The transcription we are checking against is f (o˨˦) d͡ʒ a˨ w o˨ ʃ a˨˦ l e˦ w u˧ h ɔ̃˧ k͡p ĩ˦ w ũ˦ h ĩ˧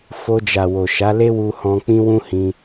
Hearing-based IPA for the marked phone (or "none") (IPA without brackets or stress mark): o˧